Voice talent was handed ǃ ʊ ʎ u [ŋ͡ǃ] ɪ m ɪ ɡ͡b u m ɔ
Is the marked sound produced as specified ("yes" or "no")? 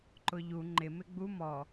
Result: yes